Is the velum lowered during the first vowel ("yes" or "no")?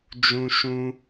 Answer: yes